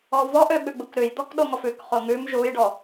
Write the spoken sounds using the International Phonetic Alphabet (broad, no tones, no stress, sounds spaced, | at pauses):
ɔ v ɔ ʔ ø ɓ ʉ ɡ͡b u k ɾ ʉ j d̪ ɔ k ɗ o ŋ ɔ f ʉ k χ o ŋ ʉ m ʒ u j ɖ ɔ